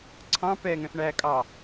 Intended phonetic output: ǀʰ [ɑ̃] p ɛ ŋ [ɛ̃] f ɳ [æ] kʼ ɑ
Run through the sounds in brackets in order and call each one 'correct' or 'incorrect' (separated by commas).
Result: correct, correct, correct